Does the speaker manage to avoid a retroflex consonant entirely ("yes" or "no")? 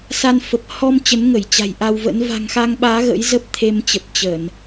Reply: yes